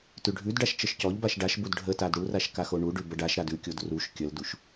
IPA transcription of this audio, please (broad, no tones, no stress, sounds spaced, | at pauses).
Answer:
t ʉ ɖʱ ʉ d ɖ a ʃ t͡ʃ ə ʃ c ɔ ʎ b a ʃ ɖ a ʃ b u d ɖʱ ə t a d ɽ u r a ʃ k a x o ɳ u ɖ ʉ b ə ɖ a ʃ ɾ a d ʉ kʲ o d r u ʃ kʲ ə l d u ʃ